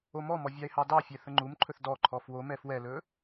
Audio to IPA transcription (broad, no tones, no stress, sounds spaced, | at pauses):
o m ɔ m ɔ vʲ ɑ e̯ h ɑ d ɑ fʲ ɛ θ ə ŋ͡ǃ u m ǃʰ ɵ θ d ɔ ǃʰ ɔ f w o m ɛ f w ɛ l ɵ